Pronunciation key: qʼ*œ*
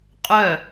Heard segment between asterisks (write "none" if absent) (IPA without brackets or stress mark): œ